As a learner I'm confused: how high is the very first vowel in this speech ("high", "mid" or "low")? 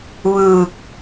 high